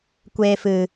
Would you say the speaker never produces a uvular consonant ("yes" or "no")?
yes